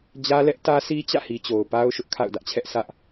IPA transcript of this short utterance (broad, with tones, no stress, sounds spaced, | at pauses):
d͡ʑ ä˦ l ɛ˦ ʔ t ä˦ s i˦ t͡ɕ ä̰˦˨ h i˨ t͡ɕ o˨ ʊ̯ p a˦ ʊ̯ ʃ ʊ˦ ʔ kʰ a̰˦˨ ʊ̯ d ä˦ ʔ t͡ɕʰ ɛ˦ ʔ sʰ ä˦ ʔ